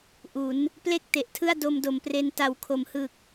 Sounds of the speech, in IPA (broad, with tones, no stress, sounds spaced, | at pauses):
ʔ u˩˦ n | p l e˥˩ k̚ t e˨˩ ʔ tʰ ɯ˥˩ a̯ d o˧ m d o˨˩ m p r e˧ n t a˨˩ w kʰ o˩˦ m h ɯ˨˩ k̚